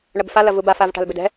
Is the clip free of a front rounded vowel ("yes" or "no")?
no